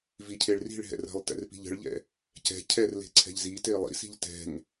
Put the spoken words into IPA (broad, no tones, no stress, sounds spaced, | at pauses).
v i cʰ e ɭ r i̤ ɭ ɦ ɛ̰ r ə̤ lˠ t ɛ̰ r p i̤ ʎ ə̤ ɭ ʎ ɛ̰ | c ɛ̤ cʰ ɛ r l e̤ ǀʰ ɛ̤ ʎ z i t e lˠ ḭ s i̤ ʎ t ɛ̤ ŋ